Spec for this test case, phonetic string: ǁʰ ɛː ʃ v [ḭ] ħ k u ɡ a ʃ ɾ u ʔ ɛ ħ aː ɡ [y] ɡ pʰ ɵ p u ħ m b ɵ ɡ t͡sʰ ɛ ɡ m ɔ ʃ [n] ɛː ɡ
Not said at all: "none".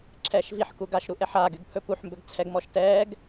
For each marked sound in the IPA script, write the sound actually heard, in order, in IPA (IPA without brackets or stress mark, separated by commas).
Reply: i, y, t